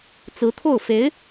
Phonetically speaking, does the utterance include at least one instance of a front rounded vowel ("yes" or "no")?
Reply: no